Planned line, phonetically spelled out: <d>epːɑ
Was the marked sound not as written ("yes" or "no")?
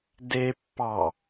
no